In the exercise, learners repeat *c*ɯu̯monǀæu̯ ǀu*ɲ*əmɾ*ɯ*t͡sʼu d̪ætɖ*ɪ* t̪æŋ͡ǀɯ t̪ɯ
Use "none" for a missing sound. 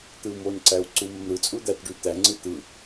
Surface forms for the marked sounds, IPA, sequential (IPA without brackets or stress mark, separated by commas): t̪, m, ɯ, y